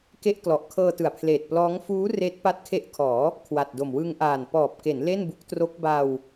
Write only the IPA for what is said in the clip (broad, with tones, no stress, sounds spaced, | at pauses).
k e˥˩ ʔ k l ɔ˨˩ ʔ kʰ ɤː˧ t ɯ˨˩ a̯ pʰ l eː˨˩ t̚ p l ɔː˦˥ ŋ f uː˦˥ r eː˦˥ t̚ p a˦˥ t̚ kʰ e˦˥ ʔ kʰ ɔː˩˦ | kʰ w a˨˩ t̚ d o˨˩ m w ɯ˧ ŋ ʔ aː˨˩ n p ɔː˨˩ p̚ k e˩˦ n l e˥˩ n b u˦˥ k̚ t r o˦˥ k̚ b a˧ w